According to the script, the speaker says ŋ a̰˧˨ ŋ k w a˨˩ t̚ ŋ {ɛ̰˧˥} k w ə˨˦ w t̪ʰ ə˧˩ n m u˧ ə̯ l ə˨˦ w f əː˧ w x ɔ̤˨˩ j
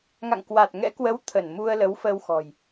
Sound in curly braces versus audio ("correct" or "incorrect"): correct